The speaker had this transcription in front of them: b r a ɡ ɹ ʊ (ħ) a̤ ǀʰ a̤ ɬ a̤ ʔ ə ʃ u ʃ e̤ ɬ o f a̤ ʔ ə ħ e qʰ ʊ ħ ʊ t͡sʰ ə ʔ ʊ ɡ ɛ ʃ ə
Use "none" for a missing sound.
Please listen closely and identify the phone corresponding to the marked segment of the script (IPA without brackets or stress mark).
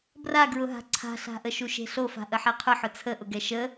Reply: ɦ